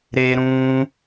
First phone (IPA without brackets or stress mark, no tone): ɾ